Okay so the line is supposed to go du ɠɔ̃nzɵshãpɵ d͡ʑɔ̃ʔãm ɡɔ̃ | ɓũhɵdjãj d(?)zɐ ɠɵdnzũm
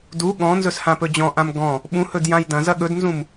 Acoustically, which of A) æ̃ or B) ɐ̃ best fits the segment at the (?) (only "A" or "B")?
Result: B